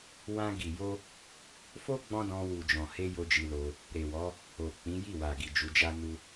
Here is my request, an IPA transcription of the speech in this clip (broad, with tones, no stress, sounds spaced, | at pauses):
w ã˧ ɡ i˨ j o˧ | f o˦ ɡ͡b ɔ̃˦ d ɔ̃˧ w u˨ d͡ʒ ɔ̃˨ h e˧ j o˦ d͡ʒ i˧ l o˧ | ɾ e˨ w ɔ˨˦ | o˨ k͡p ĩ˨˦ j i˦˨ w a˨ ɡ i˨ d͡ʒ u˨˦ d͡ʒ a˦ n u˦